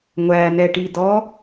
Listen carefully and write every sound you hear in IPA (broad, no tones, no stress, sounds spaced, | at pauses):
ŋʷ æ n ɛ ʈ i d ɔ